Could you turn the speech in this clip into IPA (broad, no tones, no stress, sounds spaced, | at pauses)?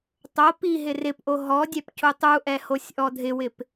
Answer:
tˤ o p i ɦ ɪ r ɪ p ʔ o ɦ ɔ dʲ ɛ p cʰ u tˤ u ʔ ɛ h o sʲ ʔ ɔ dʱ ɪ w ɪ p